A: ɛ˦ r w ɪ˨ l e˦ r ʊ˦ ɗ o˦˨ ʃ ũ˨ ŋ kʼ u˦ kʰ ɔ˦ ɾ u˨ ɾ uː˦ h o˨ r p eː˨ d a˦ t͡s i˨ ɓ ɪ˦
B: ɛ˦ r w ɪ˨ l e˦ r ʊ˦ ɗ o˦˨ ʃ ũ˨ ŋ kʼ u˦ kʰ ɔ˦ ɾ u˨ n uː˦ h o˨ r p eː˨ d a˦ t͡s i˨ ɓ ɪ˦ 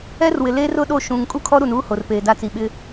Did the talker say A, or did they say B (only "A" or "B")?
B